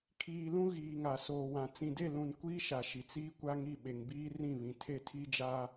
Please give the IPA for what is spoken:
kʰ iː˨ l ũ˦ ɣ iː˨ ŋ a˨ s oː˨ w ã˨ t͡s ĩ˨ d e˦˨ l ũ˨ n kʷ iː˦ ʃ a˨ ʃ i˨ t͡s iː˦ kʷ a˦ ŋ i˦˨ ɓ e˨ ŋ b iː˦ r ĩ˦˨ β ĩ˨ tʰ e˦˨ tʰ i˦ d͡ʒ a˦

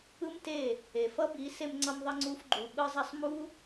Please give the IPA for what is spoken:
ɯ˦ m t e˦˨ | e˨ f ʌ˦ b i˨˦ s e˧ m ŋ͡ǀ ʌ˧ m ðˤ ʌ˧ ŋ͡ǀ u˧ f ɡ͡ǃ u˨ ɓ ɯ˦ zˤ a˦ sˤ m u˦

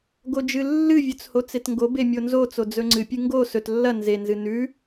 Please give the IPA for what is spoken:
ɡ o d͡ʒ ɨ lː ɨ vʲ ɵ t͡s h o t͡s e t ŋ ɡ o b e mʲ o n z o t͡s o d͡z ɵ ŋ͡ǀ ɨ pʲ ɨ ŋ ɡ o s ɵ t lː ɐ n z e n z ɨ n ʉ

